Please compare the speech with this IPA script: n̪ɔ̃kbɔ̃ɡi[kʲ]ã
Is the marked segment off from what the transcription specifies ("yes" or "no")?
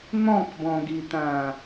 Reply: yes